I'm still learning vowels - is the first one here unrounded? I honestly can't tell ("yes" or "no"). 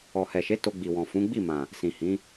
no